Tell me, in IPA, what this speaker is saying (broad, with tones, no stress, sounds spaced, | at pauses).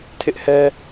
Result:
tʰ ɪ˦ ʔ h ɛ˦